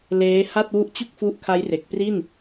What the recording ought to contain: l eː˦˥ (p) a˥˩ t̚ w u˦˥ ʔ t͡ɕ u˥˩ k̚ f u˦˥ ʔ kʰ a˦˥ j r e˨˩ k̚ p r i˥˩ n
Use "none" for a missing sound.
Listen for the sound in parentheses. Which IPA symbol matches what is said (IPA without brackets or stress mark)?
h